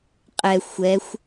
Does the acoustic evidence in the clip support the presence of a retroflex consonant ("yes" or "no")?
no